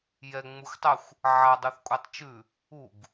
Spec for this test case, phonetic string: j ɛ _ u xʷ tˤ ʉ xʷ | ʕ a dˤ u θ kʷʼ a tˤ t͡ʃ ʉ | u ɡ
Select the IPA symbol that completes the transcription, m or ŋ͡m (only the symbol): ŋ͡m